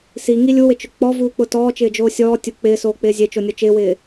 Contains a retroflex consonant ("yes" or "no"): no